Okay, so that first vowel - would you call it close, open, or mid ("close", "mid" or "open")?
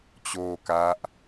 mid